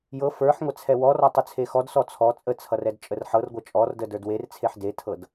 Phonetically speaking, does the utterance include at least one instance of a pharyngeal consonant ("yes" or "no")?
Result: yes